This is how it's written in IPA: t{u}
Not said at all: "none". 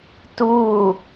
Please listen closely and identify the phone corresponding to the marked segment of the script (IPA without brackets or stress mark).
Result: uː